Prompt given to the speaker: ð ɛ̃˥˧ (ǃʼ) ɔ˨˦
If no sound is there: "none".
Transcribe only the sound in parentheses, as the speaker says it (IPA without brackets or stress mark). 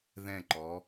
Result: ǃ